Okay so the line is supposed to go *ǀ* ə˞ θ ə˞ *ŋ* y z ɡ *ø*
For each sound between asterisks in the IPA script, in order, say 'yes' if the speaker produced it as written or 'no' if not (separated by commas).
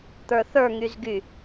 no, yes, no